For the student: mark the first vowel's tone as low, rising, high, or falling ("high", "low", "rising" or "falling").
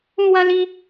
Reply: high